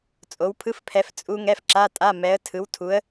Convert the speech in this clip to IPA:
t͡sʼo˨˦wpʰɯ˧˥˧fpʰɛ˨˦f t͡sʼu˦˥ ŋɛ˧˥˧fǁa˧˥˧tʼa˧˥˧ mɛ˨˦ə̯ tʰɯ˨˦wtʰu˨˦ə̯

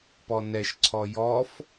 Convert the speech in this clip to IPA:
pɔnɛʃǀʰɔ jɔf

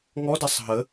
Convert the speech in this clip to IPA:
ŋɔdasˤ ɦə

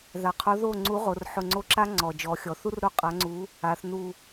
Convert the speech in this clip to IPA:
ða˩qʰo˨˥ ðo˥˩ ŋ͡ǀu˨˥ʁo˩˧rħʊ˧˩ ŋ͡ǀo˥˩ǁa˥ ŋ͡ǀɔ˩d͡ʒɔ˩˧xʲɔ˩θu˥r ɾo˥˩qʼa˨˥ŋ͡ǀu˨˥ | a˩˧θ nu˧˩

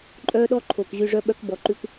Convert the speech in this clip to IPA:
ǃʼœː˦ɗɔ˦ ǃʰo˨k ʑy˧ʐœ˦ɓœ˦k bɔ˧ǃʉ˦k

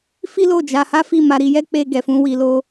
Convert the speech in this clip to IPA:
fi˦lo˦˨d͡ʒa˧ha˦ fi˦˨ma˧ɾi˧jɛ˦ k͡pe˦ɡɛ˧fũ˦ wi˧lo˦

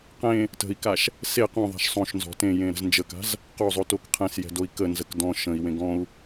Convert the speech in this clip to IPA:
qẽ | tə̤i̯kaʃ | se qõðˤa̤ʃ sˤõʃnzɔ̤ tẽjẽɾə̤z nd͡ʒəka̤z | qozˤotok qʰẽsjɛ̤doi̯ kənzək dɔ̃ ʃə̃i̯wẽ ɡɔ̃u̯

